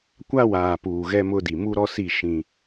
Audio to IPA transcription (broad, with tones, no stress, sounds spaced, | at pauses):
kʷ a˦ w aː˨ p uː˨ ɣ ɛ˦ m ʊ˦ d i˨ m u˦ ɾ ɔ˦ s i˦˨ ʃ ĩ˦